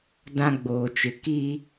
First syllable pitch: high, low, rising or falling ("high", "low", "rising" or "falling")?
high